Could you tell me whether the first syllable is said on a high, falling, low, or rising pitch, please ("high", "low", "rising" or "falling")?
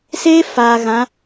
high